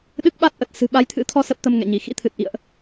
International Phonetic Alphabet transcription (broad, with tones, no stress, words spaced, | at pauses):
ɗɨ˦˥k̚ɓa˦˥t̚ʔə˨˩t̚ sɨ̤˨˩ɓa˨˦jt̪ʰɨ̰˧˥ t̪ʰɔ˧ sə˦˥p̚t̪ə˧mŋɛ̰˧˨ɲi˧˩ xḭ˧˥t̪ʰɨ˨˩t̚ʔḭ˧˨ə̯ʔ